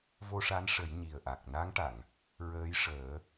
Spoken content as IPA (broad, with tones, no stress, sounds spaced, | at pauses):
v o˧ ʂ a˧˥ n ʂ ə˨˩˦ j ɲ i˨˩ ə̯ ʔ a˨˩ k̚ n a˧˥ ŋ ʈ a˨˩˨ ŋ | ɹ əː˧˥ j ʂ əː˨˩˦